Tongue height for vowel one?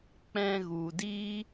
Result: mid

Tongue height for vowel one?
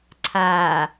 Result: low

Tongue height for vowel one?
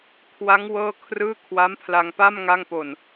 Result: low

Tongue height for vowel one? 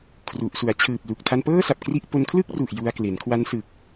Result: high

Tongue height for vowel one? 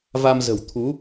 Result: low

